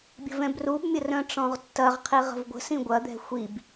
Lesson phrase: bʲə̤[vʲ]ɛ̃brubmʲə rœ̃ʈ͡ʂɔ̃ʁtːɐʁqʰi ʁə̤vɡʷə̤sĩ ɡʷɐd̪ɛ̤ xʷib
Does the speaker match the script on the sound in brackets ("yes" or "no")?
no